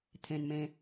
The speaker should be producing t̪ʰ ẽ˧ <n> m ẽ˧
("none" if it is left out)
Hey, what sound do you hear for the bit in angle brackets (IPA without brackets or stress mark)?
n